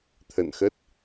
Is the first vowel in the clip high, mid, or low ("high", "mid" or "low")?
mid